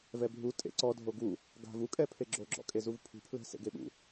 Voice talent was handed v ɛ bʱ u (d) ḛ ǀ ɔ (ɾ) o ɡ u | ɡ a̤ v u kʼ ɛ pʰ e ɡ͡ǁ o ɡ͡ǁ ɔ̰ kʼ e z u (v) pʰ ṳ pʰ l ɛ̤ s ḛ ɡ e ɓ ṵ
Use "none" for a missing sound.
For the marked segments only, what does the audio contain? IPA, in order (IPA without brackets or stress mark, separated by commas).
tʼ, dʱ, v